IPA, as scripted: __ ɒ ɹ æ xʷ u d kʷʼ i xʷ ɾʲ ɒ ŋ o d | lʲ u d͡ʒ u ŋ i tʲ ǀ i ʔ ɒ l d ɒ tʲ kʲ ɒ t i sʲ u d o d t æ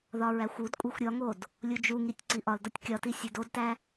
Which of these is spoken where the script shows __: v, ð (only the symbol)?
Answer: ð